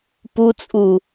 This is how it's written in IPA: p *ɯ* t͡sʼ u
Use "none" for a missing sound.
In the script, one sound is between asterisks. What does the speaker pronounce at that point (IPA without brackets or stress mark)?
u